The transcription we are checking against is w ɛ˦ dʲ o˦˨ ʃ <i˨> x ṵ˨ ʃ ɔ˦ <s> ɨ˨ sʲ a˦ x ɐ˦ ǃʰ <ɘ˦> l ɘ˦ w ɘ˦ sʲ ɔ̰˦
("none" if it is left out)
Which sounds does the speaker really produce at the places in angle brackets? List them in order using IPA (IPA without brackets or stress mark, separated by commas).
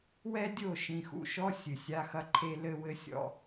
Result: ĩ˨, sʲ, e˦